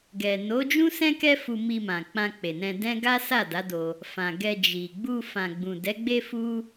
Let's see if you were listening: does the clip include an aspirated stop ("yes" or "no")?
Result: no